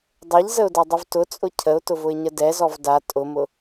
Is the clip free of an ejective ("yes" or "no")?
no